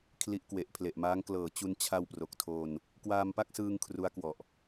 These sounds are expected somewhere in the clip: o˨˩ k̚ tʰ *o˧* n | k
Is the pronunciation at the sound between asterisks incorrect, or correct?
correct